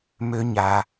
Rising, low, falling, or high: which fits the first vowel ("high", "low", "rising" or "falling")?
low